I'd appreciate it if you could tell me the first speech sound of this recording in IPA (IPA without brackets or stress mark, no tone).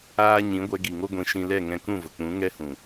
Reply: aː